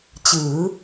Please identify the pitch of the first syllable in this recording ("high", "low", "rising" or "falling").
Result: rising